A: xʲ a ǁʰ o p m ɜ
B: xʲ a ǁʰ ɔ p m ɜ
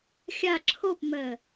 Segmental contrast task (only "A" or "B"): A